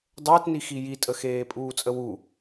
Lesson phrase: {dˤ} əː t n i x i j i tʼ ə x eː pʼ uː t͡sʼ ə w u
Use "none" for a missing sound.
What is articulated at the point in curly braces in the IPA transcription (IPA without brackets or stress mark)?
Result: dˤ